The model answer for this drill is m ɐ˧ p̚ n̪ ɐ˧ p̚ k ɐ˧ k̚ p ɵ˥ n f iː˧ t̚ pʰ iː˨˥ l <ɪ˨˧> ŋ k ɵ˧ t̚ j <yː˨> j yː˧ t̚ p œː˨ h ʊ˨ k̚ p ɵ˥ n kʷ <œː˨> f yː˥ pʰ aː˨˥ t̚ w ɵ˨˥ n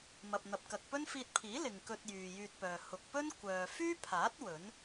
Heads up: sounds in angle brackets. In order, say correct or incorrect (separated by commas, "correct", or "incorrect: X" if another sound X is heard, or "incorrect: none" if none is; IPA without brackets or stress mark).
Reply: incorrect: ɪ˨, correct, correct